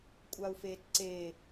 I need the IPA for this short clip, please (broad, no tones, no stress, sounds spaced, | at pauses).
kʷʼ a u̯ f eː t ǀ e